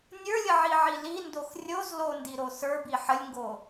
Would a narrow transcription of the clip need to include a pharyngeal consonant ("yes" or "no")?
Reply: yes